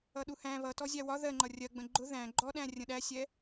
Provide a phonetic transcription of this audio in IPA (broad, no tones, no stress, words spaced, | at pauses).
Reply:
ʌɗuhæ̃ βʌtɔzʲæ wɒ ðɜŋ͡ǃʌ rʲɜɡ͡bə̃ ɡ͡ǃʊ ðæ̃ ɡ͡ǃɔɗæ̃ rʲə̃ɗæsʲɛ